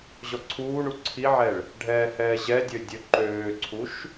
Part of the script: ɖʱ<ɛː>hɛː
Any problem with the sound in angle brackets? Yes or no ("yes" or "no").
no